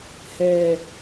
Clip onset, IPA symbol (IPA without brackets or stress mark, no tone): h